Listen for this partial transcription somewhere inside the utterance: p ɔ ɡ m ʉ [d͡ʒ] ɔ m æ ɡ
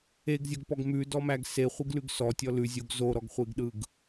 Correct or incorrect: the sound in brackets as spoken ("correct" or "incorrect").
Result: incorrect